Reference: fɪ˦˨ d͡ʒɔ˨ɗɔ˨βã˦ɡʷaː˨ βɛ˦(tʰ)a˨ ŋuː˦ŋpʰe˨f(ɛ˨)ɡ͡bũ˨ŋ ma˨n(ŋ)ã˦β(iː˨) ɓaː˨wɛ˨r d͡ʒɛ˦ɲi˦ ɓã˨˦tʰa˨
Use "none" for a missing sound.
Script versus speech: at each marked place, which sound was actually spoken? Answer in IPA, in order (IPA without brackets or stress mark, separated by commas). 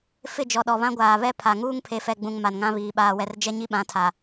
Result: pʰ, ɛ˨, ŋ, iː˨